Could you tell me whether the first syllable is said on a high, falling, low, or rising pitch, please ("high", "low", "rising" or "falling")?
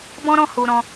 high